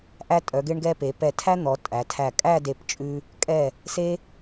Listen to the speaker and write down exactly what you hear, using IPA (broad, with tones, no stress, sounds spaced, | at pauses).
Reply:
ʔ æ˧ tʼ œ˩˧ ɡ e˧ ɳ ɡ ɛ˧ p e˩˧ p ɛ˧˩ tʰ æ˥ n̪ ɔ˩˧ tʼ æ˩˧ tʰ æ˧˩ kʼ æ˥˧ d e˧˩ p t͡ʃʼ ʉ˧ | kʼ ɛ˧˩ | s e˧